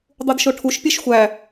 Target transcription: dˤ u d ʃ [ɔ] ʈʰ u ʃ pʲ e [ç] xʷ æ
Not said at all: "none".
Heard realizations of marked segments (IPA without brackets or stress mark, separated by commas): o, ʃ